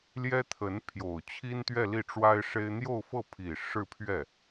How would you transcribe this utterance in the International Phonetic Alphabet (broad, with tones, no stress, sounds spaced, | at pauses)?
l j ɛ˥ t̪ʰ ə˧˥ n pʰ j o˨˩ ʊ̯ t͡ɕʰ i˥ n t̪ ɥ ɛ˥˧ l i˥˩ ʈ͡ʂ w a˥ ɪ̯ ʂ e˥ ɪ̯ n̪ j o˥˧ ʊ̯ f ɤ˥˩ pʰ i˨˩ ʂ ɻ̩˥˧ pʰ ɥ ɛ˥˩